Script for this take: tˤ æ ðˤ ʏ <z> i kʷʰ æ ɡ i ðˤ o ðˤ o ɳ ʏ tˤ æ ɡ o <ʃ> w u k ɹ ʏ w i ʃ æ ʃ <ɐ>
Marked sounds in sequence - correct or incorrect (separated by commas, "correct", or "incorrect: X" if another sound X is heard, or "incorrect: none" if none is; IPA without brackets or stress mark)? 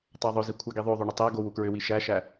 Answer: correct, incorrect: none, incorrect: æ